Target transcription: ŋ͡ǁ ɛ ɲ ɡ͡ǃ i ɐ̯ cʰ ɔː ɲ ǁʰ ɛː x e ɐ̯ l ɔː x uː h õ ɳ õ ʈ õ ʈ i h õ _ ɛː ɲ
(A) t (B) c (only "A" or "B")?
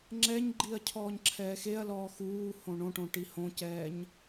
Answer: B